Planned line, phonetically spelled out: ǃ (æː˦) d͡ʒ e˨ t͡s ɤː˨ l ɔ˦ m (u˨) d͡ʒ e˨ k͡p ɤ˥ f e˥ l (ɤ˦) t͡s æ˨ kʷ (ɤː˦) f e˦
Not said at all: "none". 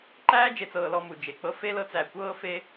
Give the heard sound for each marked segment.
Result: æː˦, u˨, ɤ˦, ɤː˦

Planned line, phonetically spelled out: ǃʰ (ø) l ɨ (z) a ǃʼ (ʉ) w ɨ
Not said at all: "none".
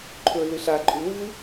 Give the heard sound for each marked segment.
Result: ɵ, ɬ, ʉ

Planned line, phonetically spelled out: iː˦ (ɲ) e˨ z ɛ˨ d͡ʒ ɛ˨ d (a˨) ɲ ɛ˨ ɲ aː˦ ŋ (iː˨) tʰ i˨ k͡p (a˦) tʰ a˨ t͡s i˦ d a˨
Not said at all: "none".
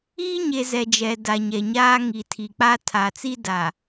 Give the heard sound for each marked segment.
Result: ɲ, a˨, i˨, a˦

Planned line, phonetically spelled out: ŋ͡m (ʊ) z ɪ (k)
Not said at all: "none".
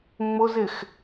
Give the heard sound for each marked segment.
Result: ʊ, x

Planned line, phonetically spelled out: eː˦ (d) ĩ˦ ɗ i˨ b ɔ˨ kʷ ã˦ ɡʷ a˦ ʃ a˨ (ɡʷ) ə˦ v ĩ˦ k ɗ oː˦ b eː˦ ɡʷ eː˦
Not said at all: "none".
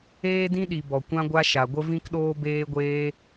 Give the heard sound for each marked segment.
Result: d, ɡʷ

